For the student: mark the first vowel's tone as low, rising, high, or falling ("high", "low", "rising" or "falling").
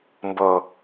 low